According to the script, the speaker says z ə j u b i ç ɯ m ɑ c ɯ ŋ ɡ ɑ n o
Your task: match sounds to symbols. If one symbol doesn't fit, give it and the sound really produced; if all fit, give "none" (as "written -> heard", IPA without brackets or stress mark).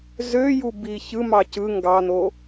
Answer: ə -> ø